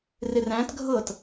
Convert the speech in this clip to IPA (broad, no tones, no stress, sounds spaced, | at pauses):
r ɪ r æ̃ t ɡʱ ɤ t